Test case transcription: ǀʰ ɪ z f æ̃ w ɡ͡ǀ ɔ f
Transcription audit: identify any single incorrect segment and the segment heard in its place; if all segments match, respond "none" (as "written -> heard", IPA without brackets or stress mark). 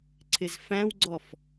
none